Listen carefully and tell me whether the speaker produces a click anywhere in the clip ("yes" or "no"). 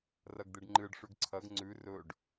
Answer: yes